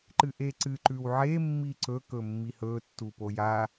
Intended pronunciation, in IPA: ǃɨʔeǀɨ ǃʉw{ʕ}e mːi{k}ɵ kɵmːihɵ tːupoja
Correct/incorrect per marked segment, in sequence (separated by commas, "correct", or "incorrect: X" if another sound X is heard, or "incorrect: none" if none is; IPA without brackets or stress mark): correct, incorrect: ǀ